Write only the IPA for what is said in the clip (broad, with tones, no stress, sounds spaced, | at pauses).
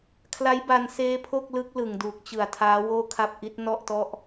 kʰ l a˦˥ j b a˧ n s eː˦˥ pʰ o˥˩ k̚ l ɯ˦˥ k̚ l ɯ˨˩ ŋ d uː˨˩ k̚ t͡ɕ ɯ˨˩ a̯ tʰ aː˦˥ w oː˥˩ kʰ a˥˩ p̚ ʔ i˦˥ t̚ n ɔ˥˩ ʔ t ɔ˥˩ ʔ